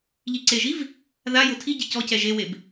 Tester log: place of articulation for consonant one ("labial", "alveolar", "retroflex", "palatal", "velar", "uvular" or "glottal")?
palatal